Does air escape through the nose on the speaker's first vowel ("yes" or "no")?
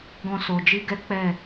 yes